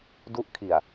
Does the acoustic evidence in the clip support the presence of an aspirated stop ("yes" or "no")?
yes